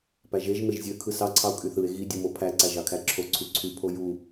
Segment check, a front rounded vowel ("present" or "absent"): present